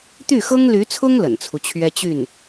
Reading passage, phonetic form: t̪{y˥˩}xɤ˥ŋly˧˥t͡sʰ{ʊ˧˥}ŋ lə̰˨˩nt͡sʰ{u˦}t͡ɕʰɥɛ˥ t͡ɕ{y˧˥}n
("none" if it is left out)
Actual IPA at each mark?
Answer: y˥˩, ʊ˥, u˦, y˥˩

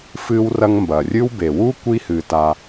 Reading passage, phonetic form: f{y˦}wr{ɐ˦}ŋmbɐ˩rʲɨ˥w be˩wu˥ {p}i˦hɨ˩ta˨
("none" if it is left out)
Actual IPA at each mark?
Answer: ɨ˦, ɐ˦, kʷ

